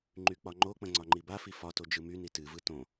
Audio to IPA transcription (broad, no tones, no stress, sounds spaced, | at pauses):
ŋ͡ǃ y k͡p ɒ ŋ͡ǃ o k͡p ə̃ ŋ͡ǀ ɒ ŋ͡ǃ i b a f i f ɒ t o d͡ʒ ɯ m y n i t ɨ v ɯ t õ